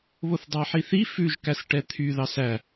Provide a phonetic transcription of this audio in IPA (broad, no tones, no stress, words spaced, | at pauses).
βoθdˤæħiθi fʉʒ kæsʈɛt̪ʰy ðɑsæ